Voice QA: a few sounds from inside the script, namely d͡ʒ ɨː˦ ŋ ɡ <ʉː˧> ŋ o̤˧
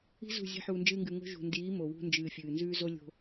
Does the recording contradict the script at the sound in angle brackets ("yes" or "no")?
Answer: yes